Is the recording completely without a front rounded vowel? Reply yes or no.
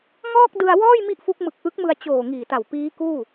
yes